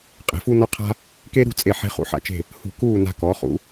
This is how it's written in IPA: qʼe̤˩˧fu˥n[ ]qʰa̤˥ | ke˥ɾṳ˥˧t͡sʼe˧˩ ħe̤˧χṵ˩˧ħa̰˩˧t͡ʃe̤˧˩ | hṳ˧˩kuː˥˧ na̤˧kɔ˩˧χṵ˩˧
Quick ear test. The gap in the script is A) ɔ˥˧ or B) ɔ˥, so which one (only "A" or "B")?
B